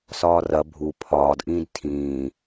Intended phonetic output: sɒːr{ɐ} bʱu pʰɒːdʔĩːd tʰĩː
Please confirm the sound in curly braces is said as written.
yes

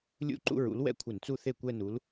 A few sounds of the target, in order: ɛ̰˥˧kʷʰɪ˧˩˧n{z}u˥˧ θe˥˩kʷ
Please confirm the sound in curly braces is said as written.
no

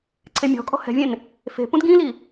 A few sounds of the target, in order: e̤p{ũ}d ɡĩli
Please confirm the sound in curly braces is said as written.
yes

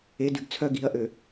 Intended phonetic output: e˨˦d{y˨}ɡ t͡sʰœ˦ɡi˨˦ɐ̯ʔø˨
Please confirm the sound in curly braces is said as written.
yes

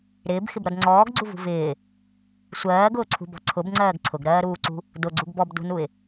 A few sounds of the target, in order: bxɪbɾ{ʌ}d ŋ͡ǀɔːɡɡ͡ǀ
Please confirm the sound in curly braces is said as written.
yes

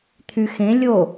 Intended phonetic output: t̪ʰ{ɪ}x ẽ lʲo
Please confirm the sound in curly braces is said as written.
no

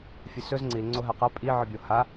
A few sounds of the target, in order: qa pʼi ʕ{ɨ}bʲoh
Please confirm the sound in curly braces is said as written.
yes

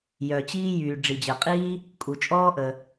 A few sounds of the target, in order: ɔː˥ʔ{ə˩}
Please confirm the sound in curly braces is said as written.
yes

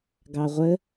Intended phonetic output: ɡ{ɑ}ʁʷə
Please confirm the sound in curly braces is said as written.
yes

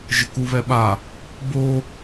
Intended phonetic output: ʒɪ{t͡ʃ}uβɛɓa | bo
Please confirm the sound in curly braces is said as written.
no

